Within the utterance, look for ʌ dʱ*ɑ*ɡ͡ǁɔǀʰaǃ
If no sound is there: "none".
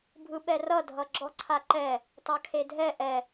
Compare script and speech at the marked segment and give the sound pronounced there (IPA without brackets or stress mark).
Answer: ʌ